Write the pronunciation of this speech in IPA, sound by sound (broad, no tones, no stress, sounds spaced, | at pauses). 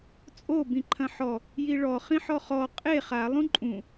t͡sʼ o b ĩ ǃʰ ɐ̃ ħ ɔ | j i ɭ ɔ χ ĩ ħ ɔ χ ɔ qʼ e χ a lˠ ũ ǃʼ ũ